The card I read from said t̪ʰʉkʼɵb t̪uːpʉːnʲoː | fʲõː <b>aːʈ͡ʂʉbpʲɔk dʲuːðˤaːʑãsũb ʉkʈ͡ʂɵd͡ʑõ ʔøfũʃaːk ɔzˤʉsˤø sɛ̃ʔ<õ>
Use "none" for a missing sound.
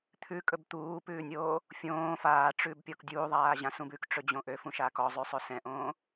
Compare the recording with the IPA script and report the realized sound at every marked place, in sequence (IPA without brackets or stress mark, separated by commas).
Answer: f, õː